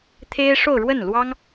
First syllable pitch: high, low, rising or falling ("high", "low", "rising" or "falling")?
high